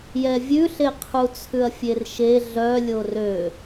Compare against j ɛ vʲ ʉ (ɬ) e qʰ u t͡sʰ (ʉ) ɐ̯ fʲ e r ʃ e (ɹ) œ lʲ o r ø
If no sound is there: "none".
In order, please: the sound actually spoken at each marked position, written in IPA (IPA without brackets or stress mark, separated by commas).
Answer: ɬ, ʉ, ɮ